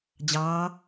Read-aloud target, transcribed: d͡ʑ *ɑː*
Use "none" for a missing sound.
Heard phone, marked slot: ɑː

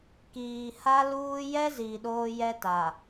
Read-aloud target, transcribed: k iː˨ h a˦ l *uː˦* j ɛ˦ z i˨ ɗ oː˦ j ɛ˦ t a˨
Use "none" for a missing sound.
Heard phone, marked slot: uː˦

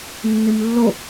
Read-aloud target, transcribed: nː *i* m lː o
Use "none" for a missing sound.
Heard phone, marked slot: i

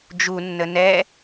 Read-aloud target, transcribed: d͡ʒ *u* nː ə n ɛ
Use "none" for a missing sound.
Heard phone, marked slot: u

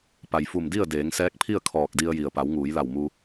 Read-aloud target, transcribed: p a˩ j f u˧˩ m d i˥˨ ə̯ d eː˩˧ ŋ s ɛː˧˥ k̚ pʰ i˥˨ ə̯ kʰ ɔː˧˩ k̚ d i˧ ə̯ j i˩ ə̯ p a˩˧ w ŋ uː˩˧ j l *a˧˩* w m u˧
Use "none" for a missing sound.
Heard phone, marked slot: a˧˩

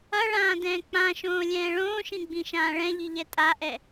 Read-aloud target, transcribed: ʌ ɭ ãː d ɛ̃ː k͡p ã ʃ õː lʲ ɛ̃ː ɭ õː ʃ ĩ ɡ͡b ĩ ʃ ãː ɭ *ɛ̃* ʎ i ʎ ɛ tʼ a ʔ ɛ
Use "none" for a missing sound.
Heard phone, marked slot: ɛ̃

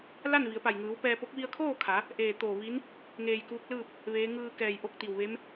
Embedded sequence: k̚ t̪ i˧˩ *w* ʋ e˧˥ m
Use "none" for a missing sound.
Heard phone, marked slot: w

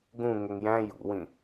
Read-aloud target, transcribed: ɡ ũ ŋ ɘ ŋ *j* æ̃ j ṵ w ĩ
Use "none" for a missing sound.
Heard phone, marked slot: j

